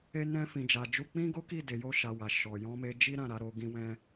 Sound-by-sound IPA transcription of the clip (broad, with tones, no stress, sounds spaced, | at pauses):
e˦ n ɛ̃˦ f ĩ˧ d͡ʒ a˧ d͡ʒ u˦ k͡p ĩ˦ ɡ o˦ k i˦˨ d e˨˦ j o˦ ʃ a˧ w a˨ ʃ ɔ˨ j ɔ̃˧ m e˧ d͡ʒ i˦ ɾ ã˦˨ ɾ a˨˦ ɾ o˧ ɡ ĩ˦ w ɛ̃˦